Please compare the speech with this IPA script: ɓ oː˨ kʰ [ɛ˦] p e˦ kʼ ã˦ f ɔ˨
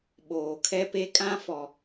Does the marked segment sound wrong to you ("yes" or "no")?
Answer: no